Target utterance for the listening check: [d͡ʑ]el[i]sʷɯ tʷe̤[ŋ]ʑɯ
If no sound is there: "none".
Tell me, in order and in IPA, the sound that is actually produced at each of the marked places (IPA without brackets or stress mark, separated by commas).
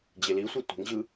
d͡ʑ, i, ŋ